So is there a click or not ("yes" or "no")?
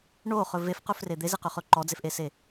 yes